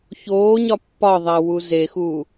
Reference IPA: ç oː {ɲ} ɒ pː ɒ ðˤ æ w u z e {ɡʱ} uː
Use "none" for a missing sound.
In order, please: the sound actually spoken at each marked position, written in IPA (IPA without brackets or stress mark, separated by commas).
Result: ɲ, x